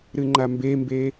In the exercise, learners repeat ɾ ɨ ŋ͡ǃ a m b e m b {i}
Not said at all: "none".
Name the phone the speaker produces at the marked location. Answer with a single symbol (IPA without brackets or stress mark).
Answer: e